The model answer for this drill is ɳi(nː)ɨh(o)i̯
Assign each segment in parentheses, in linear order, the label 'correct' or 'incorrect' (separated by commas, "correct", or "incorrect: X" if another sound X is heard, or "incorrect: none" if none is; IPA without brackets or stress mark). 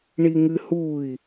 incorrect: ŋ, incorrect: u